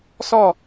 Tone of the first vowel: falling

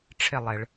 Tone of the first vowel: falling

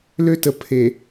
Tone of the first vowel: high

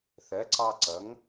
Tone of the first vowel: rising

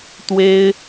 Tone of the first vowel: high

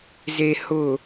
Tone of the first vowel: low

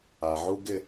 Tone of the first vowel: low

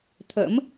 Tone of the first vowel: rising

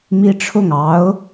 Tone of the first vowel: high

